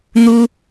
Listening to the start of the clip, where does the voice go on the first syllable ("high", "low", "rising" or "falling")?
high